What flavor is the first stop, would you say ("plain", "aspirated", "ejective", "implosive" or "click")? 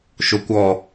plain